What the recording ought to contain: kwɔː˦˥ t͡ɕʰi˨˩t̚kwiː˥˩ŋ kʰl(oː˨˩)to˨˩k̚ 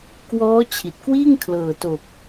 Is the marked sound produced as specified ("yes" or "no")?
no